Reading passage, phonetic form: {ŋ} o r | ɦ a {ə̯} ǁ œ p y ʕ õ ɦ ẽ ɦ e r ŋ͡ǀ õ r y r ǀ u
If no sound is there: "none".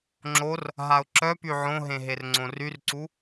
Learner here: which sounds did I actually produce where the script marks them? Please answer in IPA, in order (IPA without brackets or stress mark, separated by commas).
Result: ŋ͡ǁ, ʊ̯